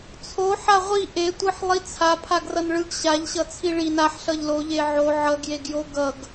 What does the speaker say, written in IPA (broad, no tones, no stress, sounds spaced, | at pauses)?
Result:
t͡sʰ o ħ a ʁʷ i ʔ e tʷ ɯ ħ lˠ i t͡sʰ a pʰ a ɡ r ʌ n ɭ ɯ ɡ ɕ a ʎ ɕ ʌ t͡sʰ i ɭ i n a ħ ɬ ʌ ʎ l o ʎ e ʕ o ʕ ʌ ɡ j e ɡ j o ɡ ʌ ɡ